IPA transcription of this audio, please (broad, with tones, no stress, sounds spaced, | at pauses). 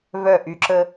v œ˥˩ ʔ y˨˦ ǁ ə˦